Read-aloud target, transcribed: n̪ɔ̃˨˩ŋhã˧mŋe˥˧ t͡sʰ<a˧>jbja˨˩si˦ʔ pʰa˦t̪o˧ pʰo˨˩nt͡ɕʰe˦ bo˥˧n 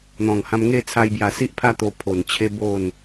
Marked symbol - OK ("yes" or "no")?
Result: yes